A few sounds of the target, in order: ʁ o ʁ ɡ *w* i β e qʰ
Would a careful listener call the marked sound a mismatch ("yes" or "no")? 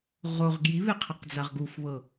yes